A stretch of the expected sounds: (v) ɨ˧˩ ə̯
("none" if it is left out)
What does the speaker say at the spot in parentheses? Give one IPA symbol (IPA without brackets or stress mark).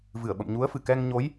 v